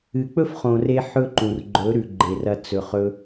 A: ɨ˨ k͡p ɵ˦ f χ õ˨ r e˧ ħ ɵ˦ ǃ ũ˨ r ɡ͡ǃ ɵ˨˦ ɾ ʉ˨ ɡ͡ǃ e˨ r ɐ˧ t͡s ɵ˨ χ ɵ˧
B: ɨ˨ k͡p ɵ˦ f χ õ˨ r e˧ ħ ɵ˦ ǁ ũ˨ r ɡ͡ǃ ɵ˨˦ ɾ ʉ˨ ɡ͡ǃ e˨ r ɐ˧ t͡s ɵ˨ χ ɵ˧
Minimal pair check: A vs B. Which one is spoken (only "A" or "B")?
A